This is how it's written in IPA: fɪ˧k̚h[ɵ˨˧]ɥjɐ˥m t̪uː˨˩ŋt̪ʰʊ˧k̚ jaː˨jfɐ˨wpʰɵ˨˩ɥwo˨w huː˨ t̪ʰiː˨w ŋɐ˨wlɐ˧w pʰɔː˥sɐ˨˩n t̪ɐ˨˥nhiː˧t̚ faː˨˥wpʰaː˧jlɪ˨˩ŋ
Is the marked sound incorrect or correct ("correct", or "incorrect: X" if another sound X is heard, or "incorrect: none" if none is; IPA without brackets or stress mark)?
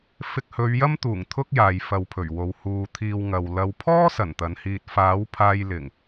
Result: correct